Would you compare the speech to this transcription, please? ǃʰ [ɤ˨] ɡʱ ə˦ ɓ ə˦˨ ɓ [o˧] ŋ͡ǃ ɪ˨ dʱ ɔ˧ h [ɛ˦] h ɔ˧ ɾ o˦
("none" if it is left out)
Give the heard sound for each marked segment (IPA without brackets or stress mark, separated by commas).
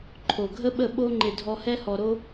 o˨, o˧, ɛ˦